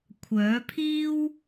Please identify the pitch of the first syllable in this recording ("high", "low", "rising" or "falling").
rising